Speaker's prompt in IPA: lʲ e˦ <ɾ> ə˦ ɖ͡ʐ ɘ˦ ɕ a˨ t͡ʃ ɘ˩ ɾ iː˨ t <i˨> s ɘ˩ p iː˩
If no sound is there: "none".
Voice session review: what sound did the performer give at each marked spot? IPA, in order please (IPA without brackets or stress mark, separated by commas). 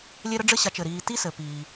ɾ, i˥